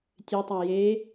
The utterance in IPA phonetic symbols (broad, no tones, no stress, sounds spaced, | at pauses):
tʲ e tˤ a j e